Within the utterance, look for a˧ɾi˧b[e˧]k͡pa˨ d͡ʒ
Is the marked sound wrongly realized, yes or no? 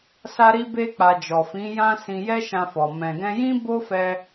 no